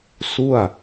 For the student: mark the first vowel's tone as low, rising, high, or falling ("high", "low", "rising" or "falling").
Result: falling